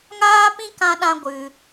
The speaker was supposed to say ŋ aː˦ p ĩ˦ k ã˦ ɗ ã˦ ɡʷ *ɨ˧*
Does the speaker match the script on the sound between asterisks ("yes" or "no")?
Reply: yes